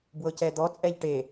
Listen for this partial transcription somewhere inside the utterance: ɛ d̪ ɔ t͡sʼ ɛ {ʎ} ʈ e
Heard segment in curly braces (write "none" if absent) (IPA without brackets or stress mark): ʎ